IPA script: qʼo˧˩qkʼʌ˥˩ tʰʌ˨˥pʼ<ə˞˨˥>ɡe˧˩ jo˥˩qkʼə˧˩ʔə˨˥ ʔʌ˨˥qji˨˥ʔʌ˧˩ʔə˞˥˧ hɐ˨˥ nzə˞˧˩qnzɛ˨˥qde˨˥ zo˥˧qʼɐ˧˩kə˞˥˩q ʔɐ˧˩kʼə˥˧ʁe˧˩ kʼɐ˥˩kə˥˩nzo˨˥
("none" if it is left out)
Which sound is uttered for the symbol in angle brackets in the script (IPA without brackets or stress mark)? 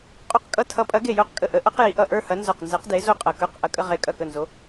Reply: ɐ˨˥